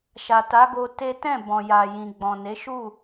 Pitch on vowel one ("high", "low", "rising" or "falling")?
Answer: low